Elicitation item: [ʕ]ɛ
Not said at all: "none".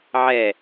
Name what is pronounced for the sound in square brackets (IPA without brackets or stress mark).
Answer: ʕ